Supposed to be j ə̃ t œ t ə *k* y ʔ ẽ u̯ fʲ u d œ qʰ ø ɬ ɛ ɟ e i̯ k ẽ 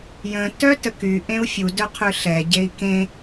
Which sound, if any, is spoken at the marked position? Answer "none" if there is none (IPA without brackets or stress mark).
k